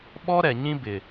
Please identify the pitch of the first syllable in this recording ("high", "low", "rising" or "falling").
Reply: high